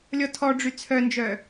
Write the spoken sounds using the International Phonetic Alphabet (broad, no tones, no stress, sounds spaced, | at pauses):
lʲ ɔ tʰ ɔ ɖ͡ʐ y t͡sʰ œ n d͡ʒ œ